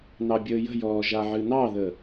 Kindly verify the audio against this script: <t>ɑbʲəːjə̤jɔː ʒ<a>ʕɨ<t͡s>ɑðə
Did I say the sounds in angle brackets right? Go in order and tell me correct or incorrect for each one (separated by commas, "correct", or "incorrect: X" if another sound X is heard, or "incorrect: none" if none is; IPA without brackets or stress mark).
incorrect: n, correct, incorrect: n